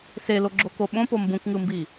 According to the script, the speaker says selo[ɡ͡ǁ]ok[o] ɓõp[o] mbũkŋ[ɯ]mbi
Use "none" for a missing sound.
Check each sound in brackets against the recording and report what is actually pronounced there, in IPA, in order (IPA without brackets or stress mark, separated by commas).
ɡ͡ǁ, o, o, ɯ